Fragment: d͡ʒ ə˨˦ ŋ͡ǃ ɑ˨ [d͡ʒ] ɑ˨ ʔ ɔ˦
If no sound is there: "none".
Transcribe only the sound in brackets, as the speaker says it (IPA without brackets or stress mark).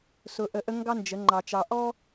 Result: t͡ʃ